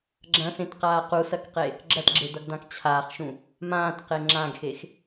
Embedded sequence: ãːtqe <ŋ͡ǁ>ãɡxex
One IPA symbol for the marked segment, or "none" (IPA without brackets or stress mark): ŋ͡ǁ